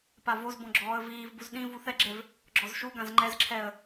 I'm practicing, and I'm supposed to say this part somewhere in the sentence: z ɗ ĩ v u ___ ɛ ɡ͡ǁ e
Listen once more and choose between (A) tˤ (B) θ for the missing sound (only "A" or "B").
B